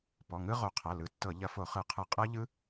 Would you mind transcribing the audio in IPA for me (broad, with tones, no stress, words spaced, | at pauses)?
pɔ˩˧˩ŋɯ˦˥ʁo˧˩˧ qʰɐ˩˧˩lɯ˩˧˩tːɤ˧˩˧ ʎɐ˧˩˧fo˧˩˧χɯ˧˩˧qʰɯ˧˩˧ qʼɤ˦˥ʎɯ˦˥